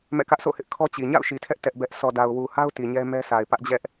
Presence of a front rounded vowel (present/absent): absent